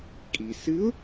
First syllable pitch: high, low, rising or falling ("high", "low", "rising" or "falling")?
low